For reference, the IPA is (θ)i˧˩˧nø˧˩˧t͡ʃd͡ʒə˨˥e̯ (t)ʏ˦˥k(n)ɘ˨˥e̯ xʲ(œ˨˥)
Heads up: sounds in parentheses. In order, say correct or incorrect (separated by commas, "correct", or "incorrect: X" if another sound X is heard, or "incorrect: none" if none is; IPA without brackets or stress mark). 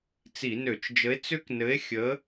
incorrect: t͡s, incorrect: t͡s, correct, incorrect: ə˨˥